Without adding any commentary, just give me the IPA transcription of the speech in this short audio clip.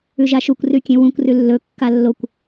ʉ ʒ a ʃ u kʷ r ʉ kʲ ẽ w ũ kʷ r ʉ lː ɵ kː a lː o kʷ

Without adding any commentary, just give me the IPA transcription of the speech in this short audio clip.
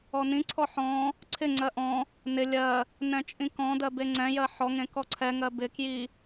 ɔ n ĩ ǀʰ ɔ ħ ɔ̃ | ǀʰ ɪ ŋ͡ǀ ɜ ʔ ɔ̃ | n ɪ lʲ ɜ | n ɛ̃ t͡ʃʼ ĩ k ɔ̃ d ɜ b e ŋ͡ǀ ɛ̃ j ɜ ħ ɔ ŋ ẽ k ɔ ǀʰ ɛ ŋ ɜ b ɪ k j i

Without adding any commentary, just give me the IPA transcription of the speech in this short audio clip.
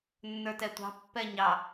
nː ə˞ t ɛ tʷ ɑ̤ pː ɛ ɲ ɑ

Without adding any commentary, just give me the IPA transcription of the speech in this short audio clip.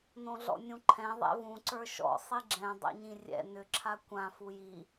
n õ ɮ ɔ̰ nʲ ũ ǃʰ ɛ̃ ðˤ ɛ̰ v ũ ǀ ə˞ ʃ ɔ̰ sˤ i ɡ͡ǁ ɛ̃ dˤ ɛ̰ ɲ ĩ rʲ ɛ̰ n ʏ ǁʰ a kʷ ã f u j i

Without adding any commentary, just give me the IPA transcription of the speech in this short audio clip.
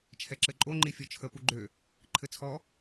t͡ʃʰ ɛ ǁ ɘ ǃʼ o ŋ͡ǃ i fʲ ɔ t͡ʃʰ ə p u ɡ͡ǃ ø | ǃʰ ɘ t͡sʰ ɔ

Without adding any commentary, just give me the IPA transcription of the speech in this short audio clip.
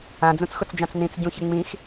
ã d͡z ũ t͡s x ʊ t͡s d͡ʒ ã t͡s n ĩ t͡s ɟ ũ ç ɪ ŋ͡m ĩ x

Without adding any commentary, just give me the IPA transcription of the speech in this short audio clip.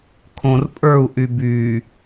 kʰ õ r pʼ ə˞ u̯ ʔ y b y

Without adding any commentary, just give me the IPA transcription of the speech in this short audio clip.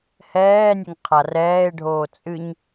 h ɛː nʲ ɛ ŋ qʰ a r ɛː e̯ ɖʱ oː t͡sʼ ɨ ɲ

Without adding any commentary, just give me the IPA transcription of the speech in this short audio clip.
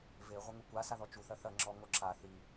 v e ʁʷ ɐ ŋ u kʷ a s a ð ɔ t͡ʃ u θ ɐ θ ɐ ŋ͡ǁ ɔ ŋ o ǁ a θ i

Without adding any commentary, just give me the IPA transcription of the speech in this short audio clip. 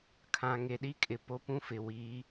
kʰ ã˨ ŋ e˨ ɗ i˦ kʼ ɪ˨ p o˦ p ũ˦ f ɪ˨ w iː˨˦

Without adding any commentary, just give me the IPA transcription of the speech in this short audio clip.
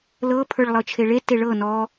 l ɤ pʰ ə˞ ɭ lˠ ɤ t͡ʃʰ e ɭ e t e ɭ ɤ n ɔ

